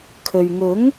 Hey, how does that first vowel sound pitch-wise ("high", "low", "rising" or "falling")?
low